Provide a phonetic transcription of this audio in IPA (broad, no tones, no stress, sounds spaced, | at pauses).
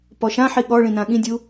p ɔ ʃ ã ħ i ɠ ɔ ɭ ĩ n ã ɠ ĩ dʲ u